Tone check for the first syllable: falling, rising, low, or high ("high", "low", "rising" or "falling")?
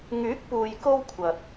rising